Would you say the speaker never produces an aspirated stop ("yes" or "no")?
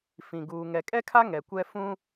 no